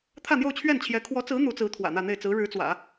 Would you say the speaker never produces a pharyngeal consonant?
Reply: yes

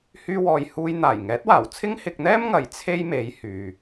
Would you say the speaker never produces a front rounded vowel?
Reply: no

